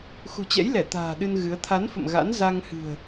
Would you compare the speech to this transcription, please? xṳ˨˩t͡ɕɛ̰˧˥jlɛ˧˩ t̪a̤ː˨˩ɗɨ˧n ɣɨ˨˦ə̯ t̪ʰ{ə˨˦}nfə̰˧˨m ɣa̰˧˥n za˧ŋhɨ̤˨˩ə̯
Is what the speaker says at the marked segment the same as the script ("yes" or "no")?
no